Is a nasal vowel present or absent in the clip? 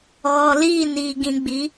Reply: present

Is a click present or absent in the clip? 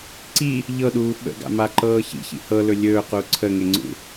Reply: present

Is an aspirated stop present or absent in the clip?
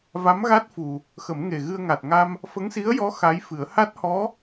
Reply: absent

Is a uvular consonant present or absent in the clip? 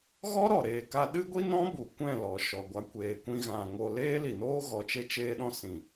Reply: absent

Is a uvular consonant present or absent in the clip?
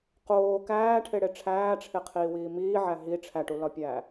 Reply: present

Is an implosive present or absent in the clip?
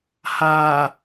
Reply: absent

